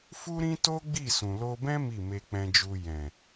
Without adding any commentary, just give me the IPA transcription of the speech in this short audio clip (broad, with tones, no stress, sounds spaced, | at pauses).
f u˦ ɾ ĩ˦ t o˦ ɡ͡b i˦˨ s ũ˨ l o˧ b ɛ̃˦ m i˦˨ m e˧ k͡p ɛ̃˧ d͡ʒ u˧ j ɛ̃˨